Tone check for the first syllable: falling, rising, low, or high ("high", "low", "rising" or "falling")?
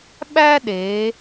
high